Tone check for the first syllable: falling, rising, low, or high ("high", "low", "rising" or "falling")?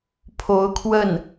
rising